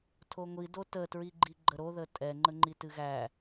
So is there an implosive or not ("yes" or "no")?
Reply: no